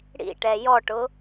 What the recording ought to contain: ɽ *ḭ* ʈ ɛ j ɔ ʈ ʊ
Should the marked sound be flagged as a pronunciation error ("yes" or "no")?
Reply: no